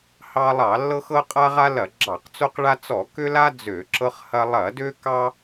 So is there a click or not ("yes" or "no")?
yes